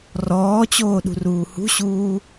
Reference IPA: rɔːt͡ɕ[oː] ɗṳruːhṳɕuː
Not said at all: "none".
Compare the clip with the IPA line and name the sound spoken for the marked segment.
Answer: oː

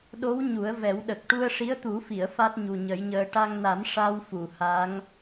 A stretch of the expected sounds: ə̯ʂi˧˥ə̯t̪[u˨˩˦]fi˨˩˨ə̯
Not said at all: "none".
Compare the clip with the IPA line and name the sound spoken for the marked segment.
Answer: u˨˩˦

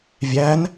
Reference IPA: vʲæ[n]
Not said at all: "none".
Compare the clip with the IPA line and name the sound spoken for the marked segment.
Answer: n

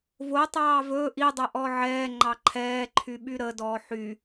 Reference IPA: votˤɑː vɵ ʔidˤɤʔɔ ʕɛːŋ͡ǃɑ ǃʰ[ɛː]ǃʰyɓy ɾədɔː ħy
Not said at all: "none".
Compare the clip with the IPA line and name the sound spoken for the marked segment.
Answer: ɛː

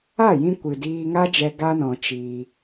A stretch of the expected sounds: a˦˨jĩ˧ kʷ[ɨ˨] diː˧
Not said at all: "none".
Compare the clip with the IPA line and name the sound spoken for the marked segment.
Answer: ɨ˨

